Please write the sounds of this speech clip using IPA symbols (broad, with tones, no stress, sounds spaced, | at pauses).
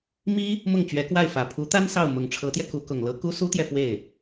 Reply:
m i˥ | m ʊ˥˩ ŋ t͡ɕ ɥ ɛ˧˥ k w a˥˩ ɪ̯ f ä˨˩ pʰ u˧˥ t̪ a˥ n s ɑ˥˩ ʊ̯ m ʊ˨˩ ŋ ʈ͡ʂʰ ɤ˧˥ t̪ j ɛ˧ k u˧˥ k ʊ˨˩ ŋ l ɤ˥ k u˥ s u˥ t̪ j ɛ˨ f w e˥˩ ɪ̯